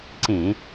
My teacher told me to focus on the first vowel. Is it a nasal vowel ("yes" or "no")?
yes